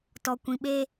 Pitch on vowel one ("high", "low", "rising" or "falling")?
low